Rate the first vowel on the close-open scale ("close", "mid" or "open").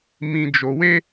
close